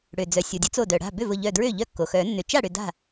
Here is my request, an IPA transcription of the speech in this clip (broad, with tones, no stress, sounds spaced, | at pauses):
ɽ ø˩ d͡z œ˩ sʲ o˩ dʲ ʊ˨˥ t͡s o˧˩ d œ˩ ɽ a̤˥˩ b ʏ˥˩ v ʊ˧˩ ʎ œ˧˩ d ɹ ø˥˩ ʎ œ˥˩ kː o˩ x œ˨˩˦ nː ʏ˩ t͡ʃ a˥˩ ɽ ʏ˧˩ d a̤˥˩